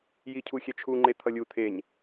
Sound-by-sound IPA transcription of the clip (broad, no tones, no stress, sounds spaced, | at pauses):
j i cʰ u xʲ ɛ t͡ʃʰ u ŋ͡ǃ e t̪ʰ ʌ lʲ u t̪ʰ e ɲ